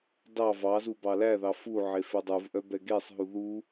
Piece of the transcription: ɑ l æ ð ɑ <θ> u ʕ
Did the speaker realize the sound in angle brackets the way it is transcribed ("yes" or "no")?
no